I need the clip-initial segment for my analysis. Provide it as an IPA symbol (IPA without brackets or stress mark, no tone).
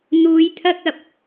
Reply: n̪